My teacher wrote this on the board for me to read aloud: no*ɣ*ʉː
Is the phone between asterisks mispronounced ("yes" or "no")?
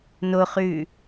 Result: yes